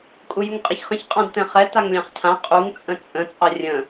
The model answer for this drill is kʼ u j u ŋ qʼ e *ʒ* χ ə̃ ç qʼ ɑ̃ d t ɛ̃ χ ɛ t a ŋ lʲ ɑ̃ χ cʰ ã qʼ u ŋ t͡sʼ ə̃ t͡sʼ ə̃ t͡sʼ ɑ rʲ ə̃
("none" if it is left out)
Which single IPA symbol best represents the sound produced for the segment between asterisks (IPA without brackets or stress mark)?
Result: ç